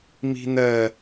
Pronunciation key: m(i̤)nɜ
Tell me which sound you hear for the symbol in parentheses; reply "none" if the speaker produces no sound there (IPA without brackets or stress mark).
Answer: i̤